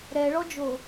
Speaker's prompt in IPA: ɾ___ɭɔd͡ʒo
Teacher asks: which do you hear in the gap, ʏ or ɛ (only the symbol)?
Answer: ɛ